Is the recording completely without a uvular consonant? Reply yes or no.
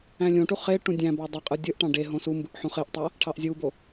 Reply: no